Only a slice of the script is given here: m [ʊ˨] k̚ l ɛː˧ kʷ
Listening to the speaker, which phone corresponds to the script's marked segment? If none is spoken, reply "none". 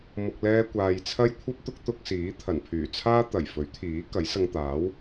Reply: ʊ˨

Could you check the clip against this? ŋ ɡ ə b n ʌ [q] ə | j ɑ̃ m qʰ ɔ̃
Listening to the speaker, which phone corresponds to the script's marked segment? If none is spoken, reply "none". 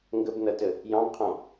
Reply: t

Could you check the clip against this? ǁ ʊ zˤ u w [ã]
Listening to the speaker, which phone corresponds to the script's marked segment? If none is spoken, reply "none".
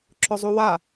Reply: a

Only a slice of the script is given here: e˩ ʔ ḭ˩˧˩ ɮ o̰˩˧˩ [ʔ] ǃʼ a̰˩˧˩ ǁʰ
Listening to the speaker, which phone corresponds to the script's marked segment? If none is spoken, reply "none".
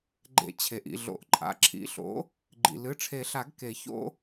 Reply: ʔ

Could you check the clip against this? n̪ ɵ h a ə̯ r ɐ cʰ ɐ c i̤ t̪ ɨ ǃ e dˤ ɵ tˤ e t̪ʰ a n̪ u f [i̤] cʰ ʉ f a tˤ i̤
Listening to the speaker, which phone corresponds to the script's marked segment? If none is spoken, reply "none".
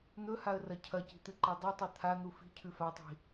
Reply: i̤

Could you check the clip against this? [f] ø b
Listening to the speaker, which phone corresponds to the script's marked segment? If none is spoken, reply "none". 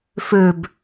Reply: f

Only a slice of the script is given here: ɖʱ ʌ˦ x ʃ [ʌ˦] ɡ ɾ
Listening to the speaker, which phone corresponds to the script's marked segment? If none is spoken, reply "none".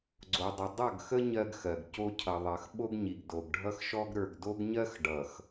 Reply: ɔ˦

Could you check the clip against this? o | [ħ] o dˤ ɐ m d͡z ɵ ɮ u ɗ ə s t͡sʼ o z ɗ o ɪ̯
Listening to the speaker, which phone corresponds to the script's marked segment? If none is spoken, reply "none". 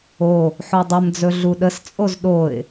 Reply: ħ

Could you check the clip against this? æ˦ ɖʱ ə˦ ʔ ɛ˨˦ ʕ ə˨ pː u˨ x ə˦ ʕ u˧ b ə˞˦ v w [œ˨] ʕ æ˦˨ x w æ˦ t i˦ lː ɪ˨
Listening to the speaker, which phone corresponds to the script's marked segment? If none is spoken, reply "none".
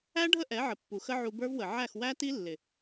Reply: ə˨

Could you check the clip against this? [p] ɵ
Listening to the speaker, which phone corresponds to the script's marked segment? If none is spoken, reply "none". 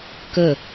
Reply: k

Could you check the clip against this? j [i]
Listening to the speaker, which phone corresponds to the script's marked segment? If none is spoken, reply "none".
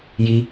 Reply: i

